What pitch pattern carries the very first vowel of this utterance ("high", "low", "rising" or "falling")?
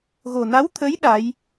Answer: low